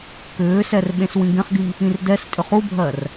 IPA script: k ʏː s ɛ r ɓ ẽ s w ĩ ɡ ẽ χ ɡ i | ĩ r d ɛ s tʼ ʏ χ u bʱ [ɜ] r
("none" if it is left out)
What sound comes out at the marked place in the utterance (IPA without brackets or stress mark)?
ɜ